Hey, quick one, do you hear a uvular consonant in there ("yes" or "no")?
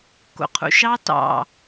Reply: yes